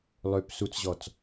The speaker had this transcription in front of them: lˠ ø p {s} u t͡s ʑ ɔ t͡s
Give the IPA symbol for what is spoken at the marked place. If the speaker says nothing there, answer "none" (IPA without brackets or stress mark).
s